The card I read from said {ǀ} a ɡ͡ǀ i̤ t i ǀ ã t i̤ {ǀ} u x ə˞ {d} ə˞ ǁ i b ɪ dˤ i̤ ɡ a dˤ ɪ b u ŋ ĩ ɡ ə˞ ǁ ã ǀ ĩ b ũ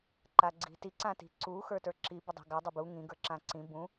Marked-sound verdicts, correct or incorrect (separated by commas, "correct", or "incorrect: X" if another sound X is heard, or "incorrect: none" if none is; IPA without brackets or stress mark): incorrect: ǃ, correct, incorrect: t